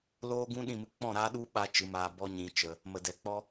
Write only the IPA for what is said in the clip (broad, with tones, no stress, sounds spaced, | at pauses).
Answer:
l oː˦ ɡ ũ˦ ɗ ĩ˦˨ m ɨ˧ k͡p ɔ̃˦˨ ɾ aː˦ ɗ u˦ ɓ a˦ t͡ʃ ɨ˨˦ m aː˧ b ɔ˦ ɲ ĩ˧ t͡ʃ ə˧ | m ə˨ d ɛ˨ k͡p ɔ˦